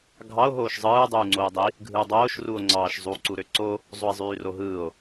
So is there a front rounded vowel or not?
yes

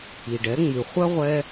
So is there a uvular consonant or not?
yes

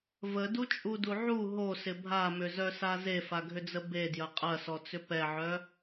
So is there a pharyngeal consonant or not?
yes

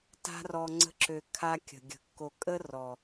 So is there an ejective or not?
yes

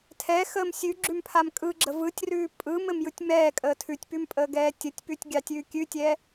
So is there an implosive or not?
no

